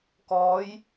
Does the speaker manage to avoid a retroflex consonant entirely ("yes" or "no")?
yes